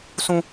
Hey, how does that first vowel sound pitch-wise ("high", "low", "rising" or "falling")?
high